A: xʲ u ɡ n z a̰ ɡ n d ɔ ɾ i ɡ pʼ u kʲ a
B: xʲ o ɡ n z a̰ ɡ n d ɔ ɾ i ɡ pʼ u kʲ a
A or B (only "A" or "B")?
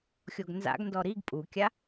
B